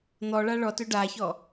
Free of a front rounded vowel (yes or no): no